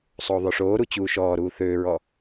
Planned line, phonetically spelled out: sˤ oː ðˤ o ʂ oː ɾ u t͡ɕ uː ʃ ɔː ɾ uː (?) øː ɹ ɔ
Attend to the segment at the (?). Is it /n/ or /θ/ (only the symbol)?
θ